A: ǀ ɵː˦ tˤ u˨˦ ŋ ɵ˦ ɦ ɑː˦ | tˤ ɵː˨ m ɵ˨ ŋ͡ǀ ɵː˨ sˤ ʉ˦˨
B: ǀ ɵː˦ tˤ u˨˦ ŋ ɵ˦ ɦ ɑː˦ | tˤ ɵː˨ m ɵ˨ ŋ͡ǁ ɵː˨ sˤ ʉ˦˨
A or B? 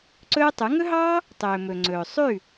A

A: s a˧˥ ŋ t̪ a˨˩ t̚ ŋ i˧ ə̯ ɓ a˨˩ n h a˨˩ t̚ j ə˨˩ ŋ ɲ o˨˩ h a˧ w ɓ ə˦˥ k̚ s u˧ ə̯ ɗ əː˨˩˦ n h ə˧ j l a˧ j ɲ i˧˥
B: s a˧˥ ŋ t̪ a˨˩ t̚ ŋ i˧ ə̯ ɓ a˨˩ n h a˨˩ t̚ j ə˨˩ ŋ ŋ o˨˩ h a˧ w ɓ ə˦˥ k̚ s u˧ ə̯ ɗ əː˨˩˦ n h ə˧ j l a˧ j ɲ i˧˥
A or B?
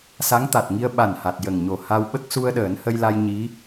A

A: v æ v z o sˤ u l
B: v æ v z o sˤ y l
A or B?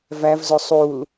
A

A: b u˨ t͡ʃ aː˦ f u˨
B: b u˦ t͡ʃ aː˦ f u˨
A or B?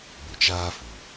A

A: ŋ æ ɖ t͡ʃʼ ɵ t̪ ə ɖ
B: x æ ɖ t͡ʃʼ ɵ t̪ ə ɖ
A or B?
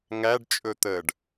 A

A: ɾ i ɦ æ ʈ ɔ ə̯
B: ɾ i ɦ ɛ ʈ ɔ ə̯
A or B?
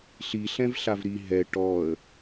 B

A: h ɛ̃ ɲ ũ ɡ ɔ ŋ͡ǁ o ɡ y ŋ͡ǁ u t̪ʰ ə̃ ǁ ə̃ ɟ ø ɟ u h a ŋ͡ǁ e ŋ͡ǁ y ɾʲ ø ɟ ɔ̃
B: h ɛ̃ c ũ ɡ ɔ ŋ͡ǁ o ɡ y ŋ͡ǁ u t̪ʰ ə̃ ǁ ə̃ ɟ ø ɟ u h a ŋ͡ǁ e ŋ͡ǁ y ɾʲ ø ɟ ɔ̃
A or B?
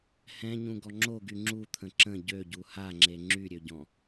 A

